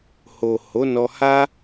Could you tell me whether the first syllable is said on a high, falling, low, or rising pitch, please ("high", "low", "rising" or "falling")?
low